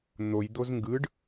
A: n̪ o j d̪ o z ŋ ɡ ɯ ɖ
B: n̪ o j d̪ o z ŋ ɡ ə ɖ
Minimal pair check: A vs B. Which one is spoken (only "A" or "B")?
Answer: A